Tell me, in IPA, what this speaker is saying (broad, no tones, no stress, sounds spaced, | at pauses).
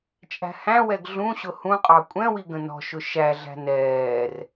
t͡ʃʼ æ̤ h æ̃ w ɛ ɡ ɮ ũ ɕ ʊ h ũ qʼ ɑ kʷʼ ɛ̃ w i ɡ ə̃ n ɔ̤ ʃ ʊ ʃ æ ɮ æ̤ n ɛː r